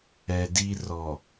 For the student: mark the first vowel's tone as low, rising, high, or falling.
low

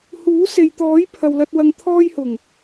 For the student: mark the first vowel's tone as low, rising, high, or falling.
rising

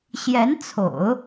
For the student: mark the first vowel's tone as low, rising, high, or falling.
rising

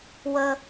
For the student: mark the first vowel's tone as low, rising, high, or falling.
high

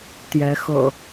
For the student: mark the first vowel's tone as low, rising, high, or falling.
rising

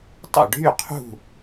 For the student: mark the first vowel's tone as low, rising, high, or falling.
falling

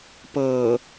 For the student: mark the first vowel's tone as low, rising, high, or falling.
low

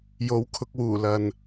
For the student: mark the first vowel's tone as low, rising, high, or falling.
rising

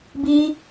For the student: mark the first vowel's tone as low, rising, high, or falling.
high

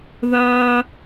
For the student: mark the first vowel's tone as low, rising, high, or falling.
high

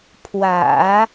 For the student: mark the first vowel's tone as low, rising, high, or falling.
low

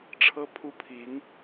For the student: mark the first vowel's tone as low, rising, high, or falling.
high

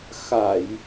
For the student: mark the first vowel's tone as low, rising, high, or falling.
low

